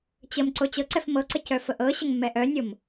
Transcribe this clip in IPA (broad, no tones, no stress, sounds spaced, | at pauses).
t͡ɕ ə m ǀ o t͡ɕ ɤ ǀ ɛ f m ɤ ǀ ə c œ f ə ʔ ɤ ɕ ə ŋ mː ɛ ʔ œ nʲ o m